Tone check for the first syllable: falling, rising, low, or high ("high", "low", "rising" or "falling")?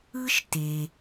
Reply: high